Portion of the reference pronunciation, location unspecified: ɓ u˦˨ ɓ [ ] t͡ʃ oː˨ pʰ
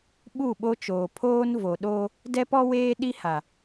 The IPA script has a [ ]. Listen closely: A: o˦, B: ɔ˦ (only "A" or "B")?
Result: A